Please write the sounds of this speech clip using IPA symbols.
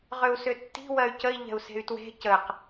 ʁʏu̯sʏtːi̤ wɜy̯cəi̯ ʎɛ̤u̯se̤y̯twe̤ cəq

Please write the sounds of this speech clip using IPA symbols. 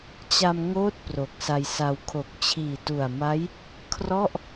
t͡ɕa˧m ŋoː˥˩t̚ pro˨˩k̚sa˧jsa˧w kʰo˨˩k̚t͡ɕʰiː˨˩tu˨˩a̯ma˦˥j | kʰrɔ˥˩ʔ

